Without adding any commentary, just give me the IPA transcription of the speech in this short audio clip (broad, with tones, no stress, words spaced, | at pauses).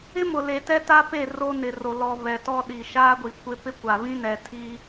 ɪ˦mʊ˨le˨ tɛ˦ta˦pe˦˨ ro˦nɪ˨ro˨ lɔ˨ βɛ˨tɔ˦ɗi˨ ʃaː˦ɡʷi˨ kʷɪ˦ pɪ˦ kʷa˨ βĩ˦nɛ˨ tʰi˦